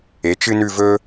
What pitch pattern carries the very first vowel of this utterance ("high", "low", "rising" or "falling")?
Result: rising